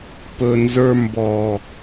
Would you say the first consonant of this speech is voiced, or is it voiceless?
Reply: voiceless